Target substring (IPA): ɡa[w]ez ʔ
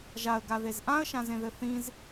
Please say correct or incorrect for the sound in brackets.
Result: incorrect: ð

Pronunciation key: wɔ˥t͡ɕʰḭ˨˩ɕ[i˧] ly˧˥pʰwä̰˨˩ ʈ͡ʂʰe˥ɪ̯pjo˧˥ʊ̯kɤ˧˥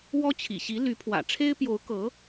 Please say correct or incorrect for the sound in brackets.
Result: incorrect: i˧˥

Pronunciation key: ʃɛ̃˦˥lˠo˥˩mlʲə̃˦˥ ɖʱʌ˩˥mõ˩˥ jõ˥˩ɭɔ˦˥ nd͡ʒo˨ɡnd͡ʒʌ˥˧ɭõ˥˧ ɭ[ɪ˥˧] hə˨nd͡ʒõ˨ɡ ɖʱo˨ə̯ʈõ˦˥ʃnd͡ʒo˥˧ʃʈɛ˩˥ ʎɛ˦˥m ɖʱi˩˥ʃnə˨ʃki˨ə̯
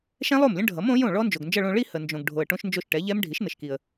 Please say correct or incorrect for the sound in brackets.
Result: incorrect: i˥˧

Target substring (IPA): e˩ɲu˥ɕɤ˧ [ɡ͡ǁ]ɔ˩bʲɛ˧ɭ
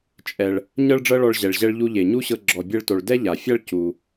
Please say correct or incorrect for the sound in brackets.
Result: correct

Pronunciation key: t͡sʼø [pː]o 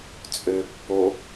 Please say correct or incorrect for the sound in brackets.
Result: correct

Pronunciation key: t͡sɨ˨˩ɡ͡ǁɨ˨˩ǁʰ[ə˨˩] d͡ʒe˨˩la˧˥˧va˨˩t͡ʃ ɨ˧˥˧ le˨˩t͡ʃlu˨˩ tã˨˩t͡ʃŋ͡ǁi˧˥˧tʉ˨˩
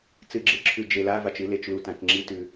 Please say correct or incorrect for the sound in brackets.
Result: incorrect: ʉ˨˩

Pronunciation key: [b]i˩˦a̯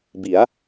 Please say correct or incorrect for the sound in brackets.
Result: correct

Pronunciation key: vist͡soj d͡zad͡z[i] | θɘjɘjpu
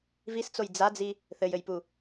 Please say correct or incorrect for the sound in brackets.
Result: correct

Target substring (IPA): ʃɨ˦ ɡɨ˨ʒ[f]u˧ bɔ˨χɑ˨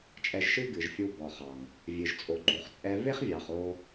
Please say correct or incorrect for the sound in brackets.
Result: incorrect: fʲ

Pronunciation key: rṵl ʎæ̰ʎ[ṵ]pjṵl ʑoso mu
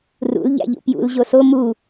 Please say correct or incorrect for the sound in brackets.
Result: correct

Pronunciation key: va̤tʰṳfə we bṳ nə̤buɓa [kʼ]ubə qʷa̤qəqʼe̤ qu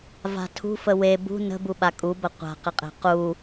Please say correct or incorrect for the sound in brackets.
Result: correct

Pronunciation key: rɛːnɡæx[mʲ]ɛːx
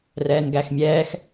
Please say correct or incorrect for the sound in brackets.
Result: correct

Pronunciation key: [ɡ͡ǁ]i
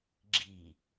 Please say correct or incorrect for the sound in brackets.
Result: correct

